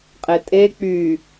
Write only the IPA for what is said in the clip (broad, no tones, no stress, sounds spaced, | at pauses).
qʼ e tʼ e k͡p y